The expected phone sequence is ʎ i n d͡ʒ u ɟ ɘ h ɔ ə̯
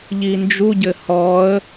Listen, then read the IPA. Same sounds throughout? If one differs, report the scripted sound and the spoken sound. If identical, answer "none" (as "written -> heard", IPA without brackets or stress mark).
none